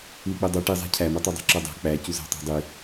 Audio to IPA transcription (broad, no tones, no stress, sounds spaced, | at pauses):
l i k͡p e dˤ o ʈ i zˤ æ̤ cʰ æ m o tˤ o dˤ ɑ̤ ǁ o dˤ æ̤ k͡p æ c u z æ̤ tˤ ɑ̤ dˤ i